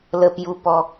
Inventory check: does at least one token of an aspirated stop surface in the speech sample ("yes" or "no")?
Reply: no